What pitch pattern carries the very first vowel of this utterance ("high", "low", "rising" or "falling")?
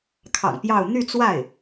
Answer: low